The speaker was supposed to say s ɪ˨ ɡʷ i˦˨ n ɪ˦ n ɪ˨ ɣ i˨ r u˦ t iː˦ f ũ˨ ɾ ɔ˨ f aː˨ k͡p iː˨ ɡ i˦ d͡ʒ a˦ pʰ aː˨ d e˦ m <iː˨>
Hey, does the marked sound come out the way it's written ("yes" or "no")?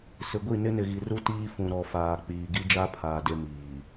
yes